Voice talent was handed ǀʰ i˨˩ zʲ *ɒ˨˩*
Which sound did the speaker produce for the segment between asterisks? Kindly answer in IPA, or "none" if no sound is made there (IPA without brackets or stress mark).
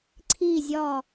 ɒ˨˩